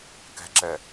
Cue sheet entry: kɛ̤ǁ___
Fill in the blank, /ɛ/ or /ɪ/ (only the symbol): ɛ